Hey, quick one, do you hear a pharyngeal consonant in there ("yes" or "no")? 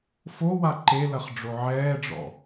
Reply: yes